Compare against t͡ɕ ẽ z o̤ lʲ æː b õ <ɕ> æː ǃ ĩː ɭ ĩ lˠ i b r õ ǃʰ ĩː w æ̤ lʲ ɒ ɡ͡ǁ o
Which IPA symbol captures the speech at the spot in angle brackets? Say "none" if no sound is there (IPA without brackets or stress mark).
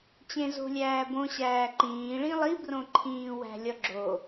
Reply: ɕ